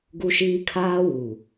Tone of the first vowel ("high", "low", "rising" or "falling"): high